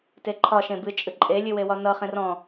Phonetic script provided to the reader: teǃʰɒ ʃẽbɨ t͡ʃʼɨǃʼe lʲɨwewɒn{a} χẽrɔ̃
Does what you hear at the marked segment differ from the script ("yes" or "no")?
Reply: yes